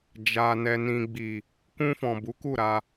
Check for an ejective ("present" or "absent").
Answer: absent